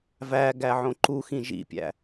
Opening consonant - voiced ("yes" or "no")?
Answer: yes